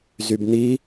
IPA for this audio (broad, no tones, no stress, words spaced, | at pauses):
zybn̪i